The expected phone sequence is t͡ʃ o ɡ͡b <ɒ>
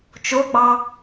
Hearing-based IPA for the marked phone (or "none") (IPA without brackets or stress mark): ɑ